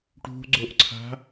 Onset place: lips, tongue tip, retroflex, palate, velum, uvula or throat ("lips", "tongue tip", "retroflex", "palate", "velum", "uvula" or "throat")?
retroflex